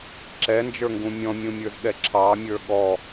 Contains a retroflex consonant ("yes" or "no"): no